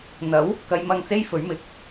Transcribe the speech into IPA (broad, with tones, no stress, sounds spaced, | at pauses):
n̪ ɐ˨˥ w | k ɐ˨˧ j m ɐ˧ ŋ t͡s e˥ j f ɵ˨˥ ɥ m ɪ˨˥ k̚